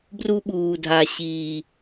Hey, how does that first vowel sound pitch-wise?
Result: high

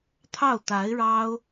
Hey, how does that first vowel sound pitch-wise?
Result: falling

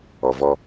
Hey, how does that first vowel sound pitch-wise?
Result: low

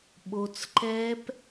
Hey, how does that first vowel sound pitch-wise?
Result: low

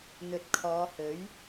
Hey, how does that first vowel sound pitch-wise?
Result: low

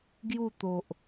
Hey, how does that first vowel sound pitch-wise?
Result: falling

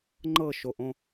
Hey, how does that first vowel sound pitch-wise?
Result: falling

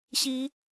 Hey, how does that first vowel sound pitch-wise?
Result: rising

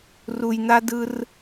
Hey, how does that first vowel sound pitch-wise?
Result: low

